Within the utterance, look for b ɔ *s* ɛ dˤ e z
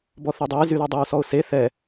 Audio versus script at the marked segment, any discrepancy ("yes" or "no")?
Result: yes